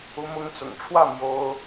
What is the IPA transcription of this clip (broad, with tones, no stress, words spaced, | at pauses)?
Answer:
u˧˥mʊ˧˥ŋt͡sʊ̰˨˩ŋʈ͡ʂʰwä˥˩ mjo˥ʊ̯